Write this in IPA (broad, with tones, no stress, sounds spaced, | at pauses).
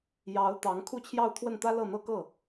j ɑ˧˥ ʊ̯ t̪ ɑ˧˥ ŋ kʰ u˥˧ t͡ɕʰ j ɑ˥˧ ʊ̯ t̪ʰ w ə˥˩ n t̪ ä˥ l ɤ˥˩ n̪ ɤ˥ k ɤ˥˩